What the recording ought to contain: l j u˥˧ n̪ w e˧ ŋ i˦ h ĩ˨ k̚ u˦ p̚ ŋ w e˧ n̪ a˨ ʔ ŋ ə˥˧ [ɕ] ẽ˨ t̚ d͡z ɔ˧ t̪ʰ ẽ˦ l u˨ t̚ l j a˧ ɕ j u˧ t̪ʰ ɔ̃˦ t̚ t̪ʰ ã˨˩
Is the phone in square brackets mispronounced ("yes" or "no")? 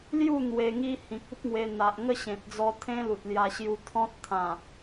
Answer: no